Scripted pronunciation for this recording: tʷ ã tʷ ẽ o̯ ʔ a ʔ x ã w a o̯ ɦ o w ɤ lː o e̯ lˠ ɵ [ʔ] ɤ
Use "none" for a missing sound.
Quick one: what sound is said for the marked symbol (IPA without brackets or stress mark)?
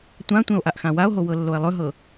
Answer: ɦ